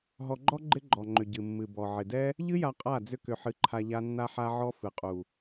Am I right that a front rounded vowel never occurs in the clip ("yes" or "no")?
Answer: no